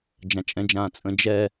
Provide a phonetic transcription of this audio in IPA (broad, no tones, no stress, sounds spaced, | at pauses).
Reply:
d͡ʒ ã t͡ʃʼ ɛ̃ d͡ʒ ãː t͡sʼ ə̃ d͡ʒ ɛ